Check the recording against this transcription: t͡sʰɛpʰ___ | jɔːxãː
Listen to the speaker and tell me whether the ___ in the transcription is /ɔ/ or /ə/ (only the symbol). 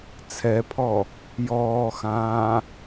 ɔ